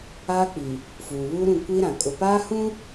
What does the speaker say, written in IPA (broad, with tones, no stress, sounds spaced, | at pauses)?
aː˦ k͡p i˨ | f uː˨ β uː˦ ɾ ũ˦˨ kʷ i˦ ɾ ã˨ kʼ ʊ˨ p aː˦ h ũ˦